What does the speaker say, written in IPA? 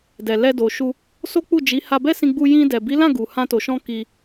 d ɛ˨ l ɛ˧ d o˨ ʃ u˧ | s o˦ k͡p u˦˨ d͡ʒ i˨˦ h a˧ b ɛ˦ s ĩ˧ ɡ͡b u˧ j ĩ˧ d ɛ˨ b i˨˦ l ã˦˨ ɡ u˨ h ã˧ t o˨ ʃ ɔ̃˧ k i˧

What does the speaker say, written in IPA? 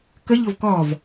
k ə ʎ ʊ v k ɔ v

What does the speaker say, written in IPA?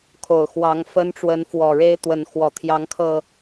kʰ o˨˩ ʊ̯ x w ɑ˨˦ ŋ f ə˦ n ʈ͡ʂ w ə˨˦ n f w ɔ˨˩ ɻ e˦ ɪ̯ t̪ w ə˨˦ n x w ɔ˨˩ t̪ʰ j ɑ˨˦ ŋ kʰ ɤ˨˩

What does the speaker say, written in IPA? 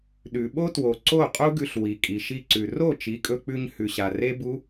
ɗ ʉ˨ ɓ o˦ t w o˨ ǀ o˦˨ qʼ u˦ ɡ ʉ˧ ɬ w i˨ kʼ i˨ ʃ i˧ ǀ ʉ˨ r o˦˨ t͡ʃ i˨˦ kʼ ɵ˧ k͡p ʉ˧ ɲ h ʉ˨ ɕ a˨ r e˦ b u˦

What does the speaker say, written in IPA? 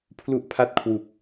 pʰ l u˥˩ ʔ pʰ a˥˩ t̚ kʰ w u˨˩ k̚

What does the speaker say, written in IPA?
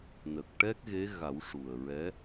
n ə˨˩ k̚ ʈ ɛ˦˥ k̚ ɣ e˧˥ ɣ a˨˩˦ w ʂ u˨˩ ə̯ ɹ ɛ˧˥

